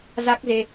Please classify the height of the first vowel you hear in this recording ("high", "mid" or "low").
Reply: low